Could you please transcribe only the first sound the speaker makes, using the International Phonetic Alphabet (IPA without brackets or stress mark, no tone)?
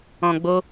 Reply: ɔ̃